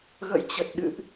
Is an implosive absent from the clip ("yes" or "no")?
no